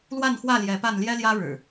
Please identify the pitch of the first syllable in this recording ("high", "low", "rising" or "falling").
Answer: falling